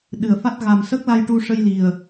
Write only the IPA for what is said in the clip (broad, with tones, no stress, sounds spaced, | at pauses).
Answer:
ɗ ɨ˨˩ ə̯ f a˦˥ t̚ ɣ a˨˩ m s ə˦˥ k̚ l a˧ j ʈ u˧ ʂ ə˧ j l i˨˩ ə̯